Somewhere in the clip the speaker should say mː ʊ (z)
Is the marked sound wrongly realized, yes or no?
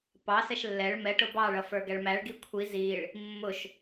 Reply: yes